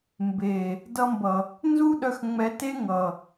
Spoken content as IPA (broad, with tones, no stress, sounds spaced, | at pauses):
m b e˨ | d ʌ˧ m b ʌ˨ | n z u˦ ɗ œ˧ x ŋ͡m ɛ˧ t e˦ ŋ ʌ˨